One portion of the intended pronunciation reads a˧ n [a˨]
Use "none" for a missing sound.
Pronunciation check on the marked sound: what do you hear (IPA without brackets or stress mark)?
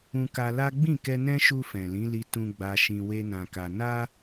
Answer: a˦